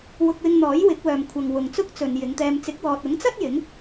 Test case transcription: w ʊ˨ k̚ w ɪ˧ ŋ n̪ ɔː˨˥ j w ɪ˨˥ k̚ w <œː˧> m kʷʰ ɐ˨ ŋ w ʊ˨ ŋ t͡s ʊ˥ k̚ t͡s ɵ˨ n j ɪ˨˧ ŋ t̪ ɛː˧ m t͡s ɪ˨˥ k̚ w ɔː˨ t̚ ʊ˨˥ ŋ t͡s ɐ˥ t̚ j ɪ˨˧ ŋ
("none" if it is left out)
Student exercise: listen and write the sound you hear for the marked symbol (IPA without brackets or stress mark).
œː˨